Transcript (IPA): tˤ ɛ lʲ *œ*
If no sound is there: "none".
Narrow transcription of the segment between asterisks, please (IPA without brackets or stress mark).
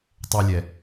ɛ